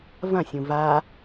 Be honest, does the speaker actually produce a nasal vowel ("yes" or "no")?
yes